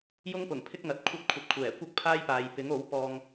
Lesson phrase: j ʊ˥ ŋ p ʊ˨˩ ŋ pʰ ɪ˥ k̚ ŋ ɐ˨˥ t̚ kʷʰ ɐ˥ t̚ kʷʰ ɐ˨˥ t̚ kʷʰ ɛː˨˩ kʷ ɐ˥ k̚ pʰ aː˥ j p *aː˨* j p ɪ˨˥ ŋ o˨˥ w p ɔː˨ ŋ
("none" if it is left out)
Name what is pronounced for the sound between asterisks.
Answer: aː˨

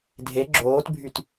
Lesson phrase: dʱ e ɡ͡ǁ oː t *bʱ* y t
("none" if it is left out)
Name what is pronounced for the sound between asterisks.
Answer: bʱ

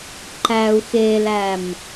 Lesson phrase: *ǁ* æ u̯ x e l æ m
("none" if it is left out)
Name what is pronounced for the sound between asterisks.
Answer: ǃ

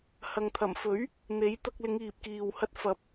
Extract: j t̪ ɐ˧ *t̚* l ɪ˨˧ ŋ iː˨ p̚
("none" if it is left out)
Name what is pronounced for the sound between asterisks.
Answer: k̚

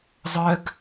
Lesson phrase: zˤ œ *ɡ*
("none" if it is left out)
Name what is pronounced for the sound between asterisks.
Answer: ɡ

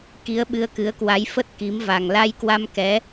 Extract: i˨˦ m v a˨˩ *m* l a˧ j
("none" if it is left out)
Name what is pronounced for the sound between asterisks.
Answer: ŋ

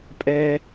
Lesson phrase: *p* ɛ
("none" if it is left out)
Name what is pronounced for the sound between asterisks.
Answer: pʼ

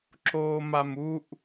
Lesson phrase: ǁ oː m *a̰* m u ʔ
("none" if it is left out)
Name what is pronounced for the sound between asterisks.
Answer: a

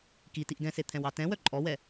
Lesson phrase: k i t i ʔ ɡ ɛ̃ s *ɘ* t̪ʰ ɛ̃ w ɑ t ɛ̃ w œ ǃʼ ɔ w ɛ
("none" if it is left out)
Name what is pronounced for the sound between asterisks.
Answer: e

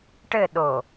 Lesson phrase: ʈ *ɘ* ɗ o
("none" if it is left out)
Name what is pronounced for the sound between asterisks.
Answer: ɘ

